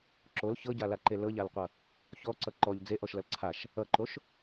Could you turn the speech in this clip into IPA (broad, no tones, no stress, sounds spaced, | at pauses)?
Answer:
ǁ o l ç ɤ ɟ a l a ǃ e l ɤ ʎ a l qʷ ʌ | ç ɔ ǀ ʌ ǃ ɔ ʎ d͡z e ʔ ɔ ʃ l ʌ l ǀʰ a ʃ | ʌ ǃ o ʃ